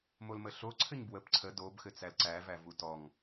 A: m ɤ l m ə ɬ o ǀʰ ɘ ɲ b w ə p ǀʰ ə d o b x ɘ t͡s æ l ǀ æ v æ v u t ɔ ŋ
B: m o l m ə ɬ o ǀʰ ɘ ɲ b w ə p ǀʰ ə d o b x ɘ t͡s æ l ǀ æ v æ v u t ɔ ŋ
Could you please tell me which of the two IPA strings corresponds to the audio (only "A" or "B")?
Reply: B